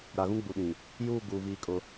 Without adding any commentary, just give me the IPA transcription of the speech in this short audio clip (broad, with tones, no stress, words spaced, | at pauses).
ɾa˨ɣũ˦ɡ͡bu˨ɗĩ˨ | juː˦˨ɡuː˨ viː˦kʼʊ˦